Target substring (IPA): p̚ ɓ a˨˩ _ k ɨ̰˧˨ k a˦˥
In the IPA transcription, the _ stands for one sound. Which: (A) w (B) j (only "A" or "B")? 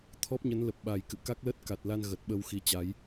B